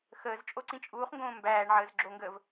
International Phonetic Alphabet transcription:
xəːz t͡ʃʼoǀĩt͡ʃʼuːχŋɡõː mbæːɳʕəːz ɡ͡ǁoŋɡəːv

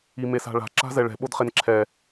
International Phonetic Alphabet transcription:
imesa̤ɭa̤ ǁa̤zɛɭɛ̤ ɓodχenǁʰɛ

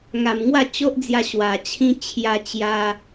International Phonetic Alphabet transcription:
ŋa˨˩mŋwa˥˧t͡ɕo˦ʔd͡zja˧ ɕwa˨˩ t͡ɕʰĩ˧ t͡ɕʰja˧ t͡ɕja˧

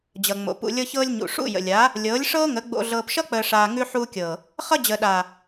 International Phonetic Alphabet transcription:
d͡ʑʌ˨ŋ͡mo̰˨ pṵ˨lʲɤ˧çɤː˧lʲɲṵ˨ ʂṵ˦˨jə̰˨lʲaː˨˦ | lʲɤː˨˦lʲʂɤː˦ŋə˨˦ ɡ͡bo̰˧ɮɤː˧pʃʌ˦ k͡pəː˨ʂaː˨ ŋʉ˧ħuː˧kʲɤː˨ | χʌ˧d͡ʑəː˨ɗaː˨

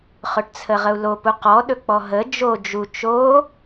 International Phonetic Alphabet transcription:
χɵʈt͡sʰəʁəu̯lo puqɔ ɗɵk͡pɔɦə d͡ʒo d͡ʒu t͡ʃo

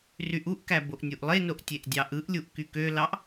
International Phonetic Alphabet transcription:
ryʔuʔkæ boʔnʲuʔlˠenoʔ tʲeʔdʲɑʔɯʔlʲuʔ kykølɑʔ

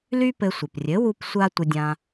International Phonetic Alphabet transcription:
ly˥pɘ˧sʷɘ˩p rʲɘ˩˥wu˧p sʷa˥tʷə˧dʲã˧

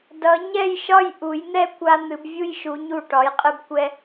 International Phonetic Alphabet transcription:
dʌ˩˧ɲɛ˥˧jʃɒ˥˧j ʔu˩˧jn̪ɛ˥˧kʷa˧ n̪ɨ˩˧bvʲu˥˧jʃu˩˧ ɲu˧˩ʈɒ˩˧jqʼɨ˧bkʷɛ˧

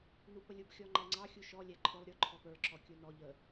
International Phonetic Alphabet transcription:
nupəlʲub xʲɔŋ͡ǃæŋ͡ǀɑ xʲuʃɔ lʲæǃʰʊlˠ ɾʲʊ ǃʰɔpə˞ ǁɔkʲunɔ ʎə

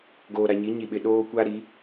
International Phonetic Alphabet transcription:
ɡoː˨ɾa˨ɲi˨˦ ɲi˨ɓɪ˨ ɗoː˦kʷa˦ ɾi˨˦

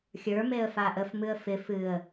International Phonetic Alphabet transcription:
xʲə˞meə̯fa ʔəfmɨə̯ fɪ fɨə̯

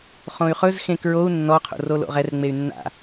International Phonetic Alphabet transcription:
χõy̯χɵz xẽkɹou̯ nːɔ qʰo̰rolo̰ʁɛr ŋ͡mey̯nːa̰

